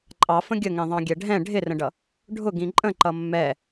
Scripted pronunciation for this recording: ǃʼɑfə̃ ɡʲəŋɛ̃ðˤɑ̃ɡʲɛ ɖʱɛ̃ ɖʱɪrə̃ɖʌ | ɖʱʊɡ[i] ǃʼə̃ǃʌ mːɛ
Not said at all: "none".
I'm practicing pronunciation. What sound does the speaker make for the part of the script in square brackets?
ĩ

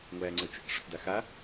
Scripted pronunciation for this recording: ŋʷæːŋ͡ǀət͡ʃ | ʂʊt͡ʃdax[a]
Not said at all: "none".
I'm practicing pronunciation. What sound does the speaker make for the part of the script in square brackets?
a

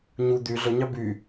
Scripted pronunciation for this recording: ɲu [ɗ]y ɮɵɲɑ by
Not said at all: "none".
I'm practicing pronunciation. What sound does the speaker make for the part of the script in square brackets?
d̪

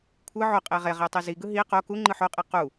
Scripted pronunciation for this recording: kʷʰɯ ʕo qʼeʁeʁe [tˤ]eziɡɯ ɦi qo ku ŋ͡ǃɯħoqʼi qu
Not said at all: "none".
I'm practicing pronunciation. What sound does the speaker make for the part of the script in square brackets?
tˤ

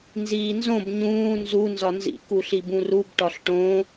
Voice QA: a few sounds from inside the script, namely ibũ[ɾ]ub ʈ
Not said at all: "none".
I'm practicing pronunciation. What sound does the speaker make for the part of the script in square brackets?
r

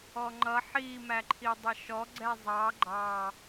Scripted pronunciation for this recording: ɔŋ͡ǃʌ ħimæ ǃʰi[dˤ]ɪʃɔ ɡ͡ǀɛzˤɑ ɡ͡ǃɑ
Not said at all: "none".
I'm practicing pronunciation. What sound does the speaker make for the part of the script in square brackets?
dˤ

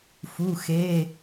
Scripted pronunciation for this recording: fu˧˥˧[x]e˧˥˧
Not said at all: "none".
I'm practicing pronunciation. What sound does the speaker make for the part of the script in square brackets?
x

